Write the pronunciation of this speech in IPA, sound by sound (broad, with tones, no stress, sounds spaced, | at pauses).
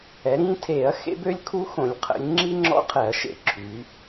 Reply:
ɛ˩˧ ɾ ĩː˥ tʰ eː˧˩˧ ɐ̯ x ḛ˥ b ø˥ lʲ kʰ u˥ x õ˧˩˧ lʲ qʰ ə̰˩˧ lʲ ŋ͡ǁ i˥ ŋ͡ǁ ɔ̰˥ qʰ ɛ˧˩˧ ɐ̯ ʃ ḛ˧˩˧ ǁʰ y˩˧